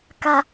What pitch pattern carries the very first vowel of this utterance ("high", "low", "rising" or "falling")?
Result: low